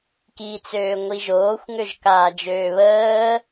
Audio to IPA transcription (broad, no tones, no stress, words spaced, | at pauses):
kit͡søː ŋʷiʒoːxʷŋøʒ kaːd͡ʒøːβəː